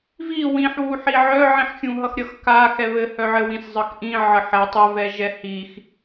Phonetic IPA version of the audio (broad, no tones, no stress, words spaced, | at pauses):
vi wĩħwuħi ʕœʕĩħxʲũɦʌx ɾʲʌxka xɛβɘhœʕɘ wĩszˤəxʔĩ ʕəħɛ tˤɘvɛ ʒɛhix